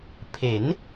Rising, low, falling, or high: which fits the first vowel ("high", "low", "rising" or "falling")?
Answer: rising